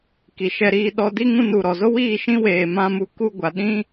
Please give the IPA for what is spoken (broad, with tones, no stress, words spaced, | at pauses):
ki˨ʃɛ˧ɾiː˧ɗɔ˧ di˦ŋũ˧ nu˨ɾɔ˨zo˦wiː˦˨ ʃĩ˦weː˨ mã˦mu˧ ku˧ɡʷa˨ɗĩ˦